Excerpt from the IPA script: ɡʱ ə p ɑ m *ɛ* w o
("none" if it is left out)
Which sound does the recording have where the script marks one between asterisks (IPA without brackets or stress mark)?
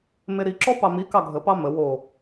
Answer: ə